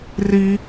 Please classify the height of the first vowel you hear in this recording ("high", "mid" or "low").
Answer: high